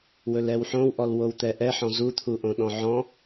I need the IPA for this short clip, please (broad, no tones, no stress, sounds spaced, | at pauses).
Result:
w ɵ l ɛ w ħ õ w ʔ ɔ l w o w t̪ ɛ ʔ ɛ ħ ɔ̃ z u t̪ʰ u ʔ õ ɗ ɔ̃ ʕ ɔ̃